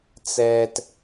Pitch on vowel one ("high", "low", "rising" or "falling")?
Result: low